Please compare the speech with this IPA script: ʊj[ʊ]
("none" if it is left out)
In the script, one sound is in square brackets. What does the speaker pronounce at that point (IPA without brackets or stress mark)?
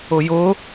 ʊ